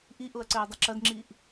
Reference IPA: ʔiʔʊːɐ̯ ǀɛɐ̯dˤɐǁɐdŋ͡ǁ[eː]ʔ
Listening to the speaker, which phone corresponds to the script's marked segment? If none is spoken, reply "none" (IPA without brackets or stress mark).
iː